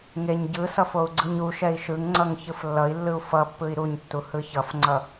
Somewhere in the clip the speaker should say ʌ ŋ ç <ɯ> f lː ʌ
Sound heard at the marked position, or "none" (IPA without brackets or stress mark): ɯ